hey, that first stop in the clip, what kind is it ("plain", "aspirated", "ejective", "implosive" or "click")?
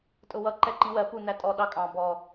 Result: ejective